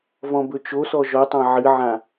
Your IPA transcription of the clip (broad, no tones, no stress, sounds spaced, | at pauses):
v ɔ̃ b ɵ t͡ʃ o s ɔ ʒ ɔ tˤ ɑ̃ ʕ ɨ ʕ ã